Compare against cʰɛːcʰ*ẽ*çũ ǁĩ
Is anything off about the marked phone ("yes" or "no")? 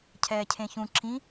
no